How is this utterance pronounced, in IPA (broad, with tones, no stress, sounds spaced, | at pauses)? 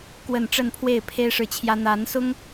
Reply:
k w ə˥˧ n ʈ͡ʂ ə˥˧ n pʰ w e˥˩ ɪ̯ pʰ e˥ ɪ̯ ʂ ɻ̩˥˩ t͡ɕʰ j ä˥ n̪ a˧˥ n s ʊ˥ ŋ